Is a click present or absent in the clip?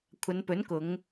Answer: absent